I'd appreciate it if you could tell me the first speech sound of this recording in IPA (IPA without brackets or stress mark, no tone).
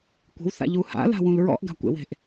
kʷ